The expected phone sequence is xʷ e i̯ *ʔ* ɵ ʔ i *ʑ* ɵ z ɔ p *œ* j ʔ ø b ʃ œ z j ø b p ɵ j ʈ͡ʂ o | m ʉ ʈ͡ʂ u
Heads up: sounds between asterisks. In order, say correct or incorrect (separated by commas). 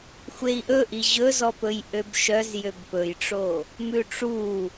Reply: correct, correct, incorrect